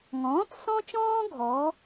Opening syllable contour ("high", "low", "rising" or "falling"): rising